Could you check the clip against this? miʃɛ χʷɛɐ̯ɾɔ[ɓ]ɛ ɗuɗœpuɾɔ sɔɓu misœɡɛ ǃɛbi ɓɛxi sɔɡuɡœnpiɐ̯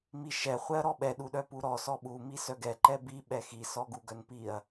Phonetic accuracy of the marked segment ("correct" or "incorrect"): correct